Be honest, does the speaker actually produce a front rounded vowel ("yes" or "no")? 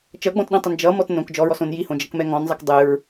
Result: no